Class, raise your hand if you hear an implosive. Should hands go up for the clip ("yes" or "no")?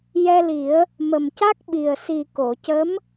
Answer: yes